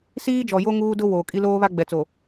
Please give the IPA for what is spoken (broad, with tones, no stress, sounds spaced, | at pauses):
s iː˦ d͡ʒ ɔ˨ j o˦ ŋ uː˦ d ʊ˦ w oː˨ kʼ i˦ l oː˦ β a˦ ɡ͡b ɛ˨ t͡s o˨